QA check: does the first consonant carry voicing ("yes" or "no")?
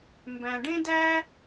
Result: yes